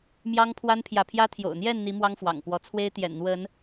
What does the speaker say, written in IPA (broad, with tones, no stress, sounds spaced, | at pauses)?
m j ɑ˦ ŋ pʰ w a˦ n pʰ j ä˨ pʰ j ä˦ t̪ʰ j o̰˨˩ ʊ̯ n̪ j ɛ˥˨ n n̪ i˨˦ m w ɑ˦ ŋ f w ɑ̰˨˩ ŋ p w ɔ˨˦ t͡sʰ w e˦ ɪ̯ t̪ j ɛ̰˨˩ n n̪ w ə˨˦ n